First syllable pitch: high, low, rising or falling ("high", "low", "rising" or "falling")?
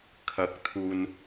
rising